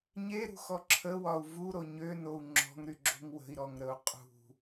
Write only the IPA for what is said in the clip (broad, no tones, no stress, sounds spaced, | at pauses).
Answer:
ɲ e ɾ ṳ x ɔ ǁʰ ə w ɒ u̯ v u ɾ o ɲ ø n o u̯ ŋ͡ǁ ɔ̤ ŋ ɾ y ɡ͡ǁ o̤ ŋ w ə̤ i̯ ɾ ɔ ŋ ɾ ə u̯ qʼ ṳ